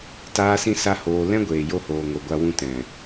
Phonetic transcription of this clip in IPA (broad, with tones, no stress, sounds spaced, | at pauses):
t aː˦ s ĩ˦ s a˦ h oː˧ l ɛ̃˦ ɡʷ eː˨ j o˧ h oː˨ ŋ o˨ ɡʷ a˧ w ũ˧ t ɛ̃˨